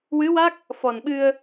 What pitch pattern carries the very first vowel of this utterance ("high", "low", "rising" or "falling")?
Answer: rising